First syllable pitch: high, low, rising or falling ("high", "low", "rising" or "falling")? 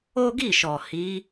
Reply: high